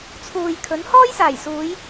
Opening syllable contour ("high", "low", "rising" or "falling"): low